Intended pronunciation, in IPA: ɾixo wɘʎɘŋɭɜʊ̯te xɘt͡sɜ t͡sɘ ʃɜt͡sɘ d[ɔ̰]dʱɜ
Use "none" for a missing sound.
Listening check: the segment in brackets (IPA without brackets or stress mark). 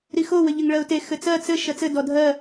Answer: ɔ